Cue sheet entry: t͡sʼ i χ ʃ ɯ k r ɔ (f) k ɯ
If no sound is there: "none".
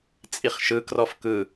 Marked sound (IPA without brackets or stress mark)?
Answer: f